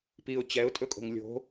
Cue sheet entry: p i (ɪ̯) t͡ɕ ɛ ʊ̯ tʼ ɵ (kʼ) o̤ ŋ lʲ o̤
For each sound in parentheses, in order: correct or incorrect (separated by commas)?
incorrect, correct